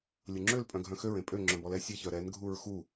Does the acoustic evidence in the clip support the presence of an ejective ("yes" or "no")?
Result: yes